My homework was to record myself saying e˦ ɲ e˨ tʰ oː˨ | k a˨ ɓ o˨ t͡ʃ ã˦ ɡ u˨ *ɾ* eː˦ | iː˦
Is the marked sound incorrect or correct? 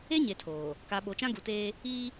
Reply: incorrect